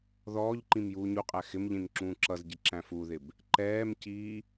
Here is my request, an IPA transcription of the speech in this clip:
ð ɔː ʎ ǃ ĩ m j uː ɲ u qʼ æ x ɪ m ʎ ĩ n ǁ ũː ǁ ʌ z ɟ ɪ ǁ æ̃ f u ð ɪ b | ǃ ɛː m c iː

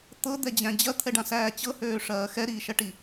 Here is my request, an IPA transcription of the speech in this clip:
t̪ ɤ d̪ ɛ d͡ʑ æ̃ d͡ʑ ɐ t̪ʰ ɛ ɖ ã s æː t͡ɕ ɤ h øː ʂ ɐː x ɛ ɾ iː ʃ ɐ ʈ i

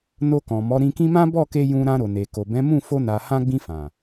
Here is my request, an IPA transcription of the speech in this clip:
n o˧ k ɔ̃˨ m ɔ˨˦ ɾ ĩ˧ k ĩ˦ m ã˦ b ɔ˦˨ k e˧ j ũ˧ ɾ ã˧ ɾ o˨ n e˨ k o˨ b ɛ̃˨˦ m ũ˦˨ f o˧ n a˨ h ã˧ ɡ͡b ĩ˧ f ã˨

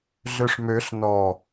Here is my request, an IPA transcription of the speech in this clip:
ɮ ø ʂ m ø ɬ n ɔ

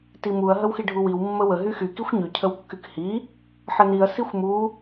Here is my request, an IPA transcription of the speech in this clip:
t i m u ɐ̯ ɦ ə w x i ɖʱ u w i w mː ə w ə ɦ y x y k i xʷ ɲ y cʰ ə w kː y k h i | ħ ə n i ɐ̯ s i xʷ m u

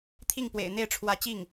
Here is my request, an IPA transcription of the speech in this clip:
t̪ʰ i˥˩ ŋ p w ḛ˨˩ ɪ̯ n̪ e˥˩ ɪ̯ ʈ͡ʂʰ w ä˧˥ t͡ɕ i˥˩ ŋ

